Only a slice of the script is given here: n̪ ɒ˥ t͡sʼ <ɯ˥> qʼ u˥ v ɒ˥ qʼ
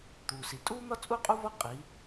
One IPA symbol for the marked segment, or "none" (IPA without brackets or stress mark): u˥